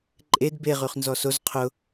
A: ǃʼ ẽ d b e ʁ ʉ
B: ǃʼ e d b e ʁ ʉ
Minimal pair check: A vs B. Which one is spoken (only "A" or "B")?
B